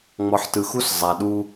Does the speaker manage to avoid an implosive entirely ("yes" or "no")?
no